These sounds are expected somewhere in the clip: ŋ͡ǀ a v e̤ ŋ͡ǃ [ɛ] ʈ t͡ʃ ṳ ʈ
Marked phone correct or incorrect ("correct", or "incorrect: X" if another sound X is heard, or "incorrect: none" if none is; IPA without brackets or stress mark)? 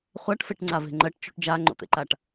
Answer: incorrect: ɜ